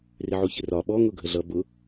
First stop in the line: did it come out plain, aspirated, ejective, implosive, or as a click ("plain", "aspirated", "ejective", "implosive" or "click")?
implosive